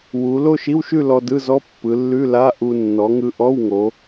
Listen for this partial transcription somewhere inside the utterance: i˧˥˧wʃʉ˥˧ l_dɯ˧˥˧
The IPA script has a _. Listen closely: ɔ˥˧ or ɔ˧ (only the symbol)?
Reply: ɔ˧